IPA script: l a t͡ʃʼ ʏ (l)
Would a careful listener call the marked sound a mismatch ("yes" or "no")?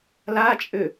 yes